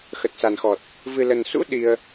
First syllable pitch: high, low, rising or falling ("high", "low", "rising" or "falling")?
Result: low